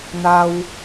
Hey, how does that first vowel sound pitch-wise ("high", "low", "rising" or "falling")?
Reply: high